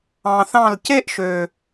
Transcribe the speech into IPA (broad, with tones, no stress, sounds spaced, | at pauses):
ɑ̃˨ θ ɑ̃˦˨ l c e˦ ʔ ʃ ø˨